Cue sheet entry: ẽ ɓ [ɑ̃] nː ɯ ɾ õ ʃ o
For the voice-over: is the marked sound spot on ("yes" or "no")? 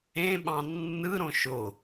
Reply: yes